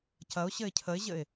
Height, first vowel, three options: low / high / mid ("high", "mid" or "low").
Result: low